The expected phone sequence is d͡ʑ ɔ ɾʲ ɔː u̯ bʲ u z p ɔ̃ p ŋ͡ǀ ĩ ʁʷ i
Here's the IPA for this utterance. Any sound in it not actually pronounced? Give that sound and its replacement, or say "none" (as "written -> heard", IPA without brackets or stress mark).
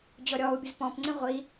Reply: none